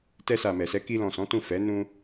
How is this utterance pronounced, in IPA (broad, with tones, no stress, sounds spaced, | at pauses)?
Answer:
t ɛ˧ s a˨ m ɛ˨ s ɛ˨˦ k i˧ l ɔ̃˨ s ɔ̃˨˦ t ũ˦˨ f ɛ˨˦ n ũ˦